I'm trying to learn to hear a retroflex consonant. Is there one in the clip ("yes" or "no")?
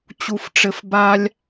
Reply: yes